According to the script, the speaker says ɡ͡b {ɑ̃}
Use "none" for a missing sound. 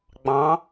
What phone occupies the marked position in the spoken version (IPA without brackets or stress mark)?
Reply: ɑ̃